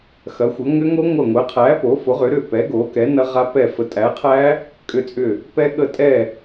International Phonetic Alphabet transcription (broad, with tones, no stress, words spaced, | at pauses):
xɐ˨˥xʷɐ˨˥ ŋʏ˦˥ŋo˦˥ŋʷɐ˦˨ŋʷɛ˨˥ qʰæ˨˥ po˨˥fo˨˥ʁʏ˨˥ɾʏ˦˨ pɛ˨˥ ɡo˨˥kɛ˨˥ nɐ˦˥ʁa˦˥ pɛ˦˨ fə˨˥tʼæ˨˥qʰæ˦˥ | kʼʏ˦˨t͡sʼʏ˦˨ | pɛ˦˥ɠə˦˨ tʼɛ˦˨